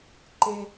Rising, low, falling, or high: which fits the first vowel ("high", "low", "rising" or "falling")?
high